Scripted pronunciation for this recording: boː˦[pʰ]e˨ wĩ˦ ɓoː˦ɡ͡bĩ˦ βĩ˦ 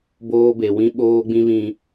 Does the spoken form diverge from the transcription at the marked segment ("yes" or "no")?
yes